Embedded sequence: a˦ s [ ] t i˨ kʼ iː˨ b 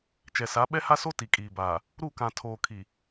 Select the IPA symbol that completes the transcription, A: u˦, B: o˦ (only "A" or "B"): B